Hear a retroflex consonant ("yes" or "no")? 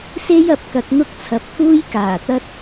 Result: no